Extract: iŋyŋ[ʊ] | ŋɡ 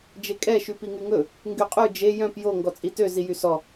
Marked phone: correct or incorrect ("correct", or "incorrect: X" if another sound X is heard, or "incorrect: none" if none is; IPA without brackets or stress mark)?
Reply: incorrect: ɵ